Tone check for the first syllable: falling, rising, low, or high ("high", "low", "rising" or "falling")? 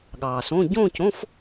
low